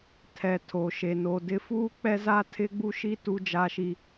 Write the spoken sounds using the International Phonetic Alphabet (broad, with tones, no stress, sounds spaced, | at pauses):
tʰ ɛ˨ tʰ o˨ ʃ e˨ n o˨ d ɪ˦ f uː˦ k͡p ɛ˦ z a˦ tʰ ɪ˦ ɡ͡b u˦ ʃ i˦ t u˦ d͡ʒ a˦ ʃ i˦